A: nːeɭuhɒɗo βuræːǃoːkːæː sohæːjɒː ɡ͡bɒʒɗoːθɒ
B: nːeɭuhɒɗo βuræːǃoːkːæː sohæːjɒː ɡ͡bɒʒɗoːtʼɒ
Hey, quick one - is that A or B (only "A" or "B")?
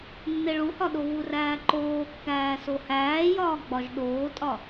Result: B